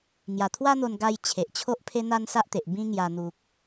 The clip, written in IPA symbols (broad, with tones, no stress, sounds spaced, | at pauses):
ŋ j a˨˩ t̪ʰ w a˦ n̪ o˧ n ɡ a˧ j t͡ɕʰ e˨ ʔ t͡ɕʰ o˦ ʔ pʰ e˦ n̪ a˦ n s a˦ ʔ t̪ e˨ ʔ b ĩ˦ ŋ j a˧ n̪ u˨ k̚